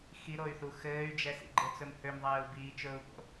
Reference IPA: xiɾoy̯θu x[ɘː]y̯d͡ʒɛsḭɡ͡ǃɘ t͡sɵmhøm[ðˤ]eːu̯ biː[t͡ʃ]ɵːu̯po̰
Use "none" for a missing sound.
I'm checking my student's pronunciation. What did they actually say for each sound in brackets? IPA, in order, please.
ɘː, ðˤ, t͡ʃ

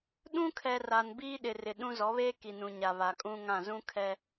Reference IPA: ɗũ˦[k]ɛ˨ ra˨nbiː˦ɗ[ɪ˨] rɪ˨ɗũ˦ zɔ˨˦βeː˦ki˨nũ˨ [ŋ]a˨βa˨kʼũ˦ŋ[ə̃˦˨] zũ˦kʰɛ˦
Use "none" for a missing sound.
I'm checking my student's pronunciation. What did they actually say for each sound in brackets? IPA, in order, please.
kʰ, ɪ˨, ɲ, ã˦˨

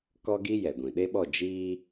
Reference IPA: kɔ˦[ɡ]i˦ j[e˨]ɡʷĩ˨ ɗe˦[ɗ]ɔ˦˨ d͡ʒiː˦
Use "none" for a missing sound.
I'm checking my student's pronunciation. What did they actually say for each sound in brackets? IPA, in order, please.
ɡ, ɛ˨, ɓ

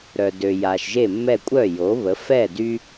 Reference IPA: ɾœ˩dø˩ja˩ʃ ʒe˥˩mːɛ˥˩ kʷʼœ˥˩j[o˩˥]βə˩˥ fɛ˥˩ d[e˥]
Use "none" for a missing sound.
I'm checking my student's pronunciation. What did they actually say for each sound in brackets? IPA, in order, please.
o˩˥, y˥

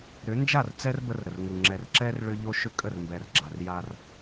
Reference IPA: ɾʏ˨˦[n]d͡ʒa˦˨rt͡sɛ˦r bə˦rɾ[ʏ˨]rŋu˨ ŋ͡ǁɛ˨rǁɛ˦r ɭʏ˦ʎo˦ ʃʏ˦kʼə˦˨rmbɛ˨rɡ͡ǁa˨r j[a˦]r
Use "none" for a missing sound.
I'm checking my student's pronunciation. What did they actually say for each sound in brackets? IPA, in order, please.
n, ə˨, a˦

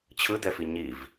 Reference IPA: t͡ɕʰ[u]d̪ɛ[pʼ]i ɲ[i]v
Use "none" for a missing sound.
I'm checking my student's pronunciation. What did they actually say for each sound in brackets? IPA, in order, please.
ɯ, f, i

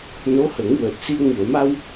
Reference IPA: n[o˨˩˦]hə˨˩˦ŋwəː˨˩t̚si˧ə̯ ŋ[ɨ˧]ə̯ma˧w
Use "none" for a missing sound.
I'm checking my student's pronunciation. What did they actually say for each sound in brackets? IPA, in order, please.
o˧˥, ɨ˨˩˨

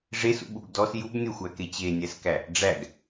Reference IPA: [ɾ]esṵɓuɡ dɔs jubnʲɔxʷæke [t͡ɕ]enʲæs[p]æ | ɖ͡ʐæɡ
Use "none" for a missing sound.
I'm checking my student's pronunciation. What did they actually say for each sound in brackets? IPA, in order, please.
ʐ, t͡ɕ, k

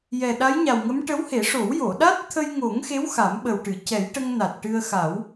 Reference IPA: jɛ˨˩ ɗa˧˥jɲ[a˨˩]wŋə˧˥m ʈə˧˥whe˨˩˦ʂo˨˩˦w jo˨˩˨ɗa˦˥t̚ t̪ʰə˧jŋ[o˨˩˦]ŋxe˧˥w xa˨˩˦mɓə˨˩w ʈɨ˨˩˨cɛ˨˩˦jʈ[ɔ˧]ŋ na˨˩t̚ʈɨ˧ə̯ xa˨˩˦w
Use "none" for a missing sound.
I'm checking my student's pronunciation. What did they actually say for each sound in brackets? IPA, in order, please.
a˨˩, o˨˩˦, ə˧

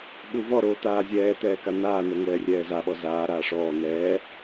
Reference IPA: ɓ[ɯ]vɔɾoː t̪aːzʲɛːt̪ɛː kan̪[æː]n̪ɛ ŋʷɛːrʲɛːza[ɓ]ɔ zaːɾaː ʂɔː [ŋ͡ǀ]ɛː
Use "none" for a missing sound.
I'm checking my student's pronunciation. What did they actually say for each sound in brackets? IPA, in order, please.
u, aː, ɓ, n̪

